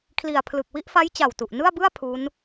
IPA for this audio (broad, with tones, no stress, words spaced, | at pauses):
kʰli˨˩a̯pʰlɯ˨˩k̚ wi˥˩ʔfa˦˥j t͡ɕa˨˩wtu˨˩ʔnɯ˥˩a̯bɯ˥˩a̯ pʰu˦˥n